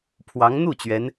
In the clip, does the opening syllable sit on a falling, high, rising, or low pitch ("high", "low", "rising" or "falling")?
rising